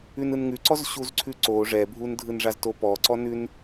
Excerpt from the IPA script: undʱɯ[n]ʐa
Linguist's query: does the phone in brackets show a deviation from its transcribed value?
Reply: no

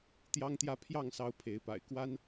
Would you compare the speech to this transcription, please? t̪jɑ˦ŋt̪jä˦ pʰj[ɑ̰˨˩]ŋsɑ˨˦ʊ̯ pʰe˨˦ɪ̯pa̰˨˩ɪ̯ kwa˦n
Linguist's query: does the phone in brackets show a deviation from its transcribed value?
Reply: yes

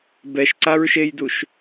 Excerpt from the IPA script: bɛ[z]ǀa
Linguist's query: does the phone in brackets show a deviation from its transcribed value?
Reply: yes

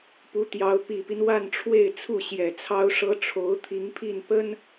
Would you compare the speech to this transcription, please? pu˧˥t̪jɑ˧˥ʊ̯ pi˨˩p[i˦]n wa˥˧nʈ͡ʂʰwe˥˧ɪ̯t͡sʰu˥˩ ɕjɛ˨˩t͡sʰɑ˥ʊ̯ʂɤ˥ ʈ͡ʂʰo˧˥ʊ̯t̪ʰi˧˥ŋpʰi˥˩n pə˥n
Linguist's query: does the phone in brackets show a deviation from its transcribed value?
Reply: no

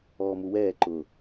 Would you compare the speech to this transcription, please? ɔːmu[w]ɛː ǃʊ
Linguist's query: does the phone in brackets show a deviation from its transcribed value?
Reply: no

